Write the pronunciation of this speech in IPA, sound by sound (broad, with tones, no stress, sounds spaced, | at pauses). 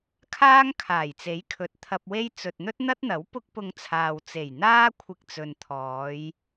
kʰ aː˥ ŋ kʰ aː˨˩ j t͡s e˨˥ j kʰ ɵ˨ t̚ t̪ʰ ɐ˧ p̚ w e˥ j t͡s ɵ˨ t̚ n̪ ɵ˥ t̚ n̪ ɐ˥ t̚ n̪ ɐ˨˥ w p ʊ˥ k̚ p ʊ˧ ŋ t͡sʰ aː˨ w t͡s e˨˩ j n̪ aː˥ kʷʰ ɪ˥ k̚ t͡s ɵ˧ n t̪ʰ ɔː˨˥ j